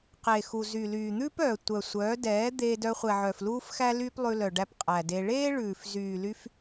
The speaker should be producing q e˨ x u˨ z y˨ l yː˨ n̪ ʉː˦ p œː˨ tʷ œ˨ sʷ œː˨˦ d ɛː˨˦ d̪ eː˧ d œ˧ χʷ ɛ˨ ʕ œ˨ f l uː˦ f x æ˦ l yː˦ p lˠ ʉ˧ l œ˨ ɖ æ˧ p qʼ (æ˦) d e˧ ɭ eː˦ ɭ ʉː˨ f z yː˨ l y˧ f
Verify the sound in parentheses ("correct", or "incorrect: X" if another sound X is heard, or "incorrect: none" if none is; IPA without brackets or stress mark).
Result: incorrect: æ˨